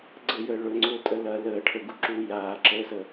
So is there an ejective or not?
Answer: yes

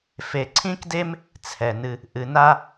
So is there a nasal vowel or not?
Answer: yes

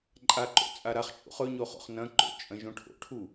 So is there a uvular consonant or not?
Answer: yes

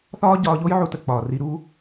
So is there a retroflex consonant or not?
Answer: no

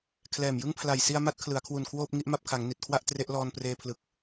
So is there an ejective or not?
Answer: no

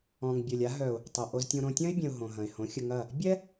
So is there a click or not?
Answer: no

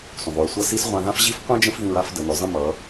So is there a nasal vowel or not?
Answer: yes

